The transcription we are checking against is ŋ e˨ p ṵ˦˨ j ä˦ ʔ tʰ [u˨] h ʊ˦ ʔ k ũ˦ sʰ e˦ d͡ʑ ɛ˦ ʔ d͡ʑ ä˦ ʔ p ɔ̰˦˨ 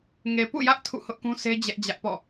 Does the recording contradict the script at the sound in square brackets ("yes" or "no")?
yes